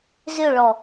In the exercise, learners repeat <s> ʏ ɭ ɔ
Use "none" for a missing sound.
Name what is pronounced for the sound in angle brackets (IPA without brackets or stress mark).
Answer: z